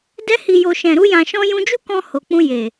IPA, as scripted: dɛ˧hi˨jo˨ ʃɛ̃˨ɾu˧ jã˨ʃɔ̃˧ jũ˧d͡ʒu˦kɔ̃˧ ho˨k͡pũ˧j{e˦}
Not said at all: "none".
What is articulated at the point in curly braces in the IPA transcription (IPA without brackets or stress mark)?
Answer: e˨